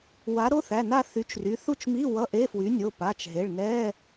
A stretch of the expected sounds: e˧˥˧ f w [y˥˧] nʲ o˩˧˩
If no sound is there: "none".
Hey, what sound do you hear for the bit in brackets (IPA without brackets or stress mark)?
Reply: y˨˥